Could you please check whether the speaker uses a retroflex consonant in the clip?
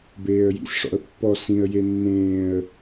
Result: yes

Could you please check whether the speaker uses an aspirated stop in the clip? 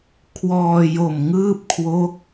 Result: yes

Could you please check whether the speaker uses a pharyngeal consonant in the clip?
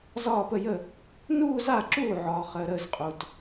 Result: yes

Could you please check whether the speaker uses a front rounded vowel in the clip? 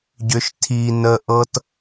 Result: yes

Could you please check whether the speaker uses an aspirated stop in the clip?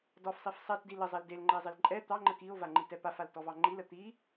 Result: no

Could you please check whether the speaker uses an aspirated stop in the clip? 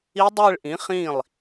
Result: no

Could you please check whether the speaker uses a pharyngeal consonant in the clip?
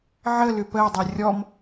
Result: yes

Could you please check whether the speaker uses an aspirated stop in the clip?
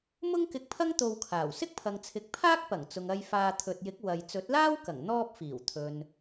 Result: yes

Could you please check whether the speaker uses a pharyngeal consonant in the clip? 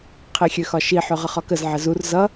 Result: yes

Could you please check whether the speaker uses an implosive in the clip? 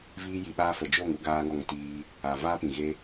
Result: yes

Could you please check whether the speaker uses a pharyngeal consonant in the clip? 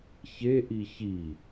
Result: no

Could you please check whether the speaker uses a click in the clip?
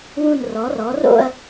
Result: no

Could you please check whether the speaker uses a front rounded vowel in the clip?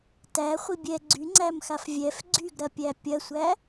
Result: yes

